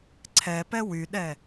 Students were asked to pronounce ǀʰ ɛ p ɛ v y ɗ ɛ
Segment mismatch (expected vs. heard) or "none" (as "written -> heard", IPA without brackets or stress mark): v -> w